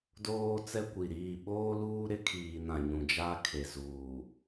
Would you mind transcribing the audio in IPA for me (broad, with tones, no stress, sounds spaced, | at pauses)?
d oː˦ t͡s ɛ˦ kʷ i˨ ɾ iː˦˨ ɓ oː˦ l uː˦ ɾ ɪ˦ kʰ iː˨ n ã˨ ɲ ũ˨ d͡ʒ a˦ kʰ e˨ z uː˨